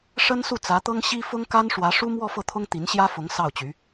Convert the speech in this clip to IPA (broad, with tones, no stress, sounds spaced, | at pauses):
ʂ ə˥ n s u˥˩ t͡s ä˧˥ t̪ ɤ˥ ŋ ɕ i˥ f ʊ˥ ŋ k a˥ n ʂ w ä˧˥ ʂ u˥ m w ɔ˥˧ f ɤ˥˩ t̪ʰ ʊ˥ ŋ t̪ i˧˥ n ɕ j ä˥ f ʊ˧˥ ŋ s ɑ˥˩ ʊ̯ t͡ɕ y˧˥